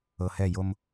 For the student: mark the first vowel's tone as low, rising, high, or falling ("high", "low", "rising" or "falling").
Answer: low